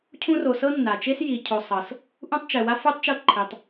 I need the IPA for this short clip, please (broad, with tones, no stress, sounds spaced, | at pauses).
cʰ ũ˦ r o˨ s ɤ˥ nː a˩ t͡ʃ e˥ s j i˨ cʰ o˨ sˤ ɤ˩ s | ʔ ũ˥ tˤ t͡ʃ ɛ˩ w a˥ f u˥ tˤ t͡ʃ ɤ˦ ǃʰ i˩ tˤ